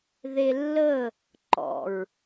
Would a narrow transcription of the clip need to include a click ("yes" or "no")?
yes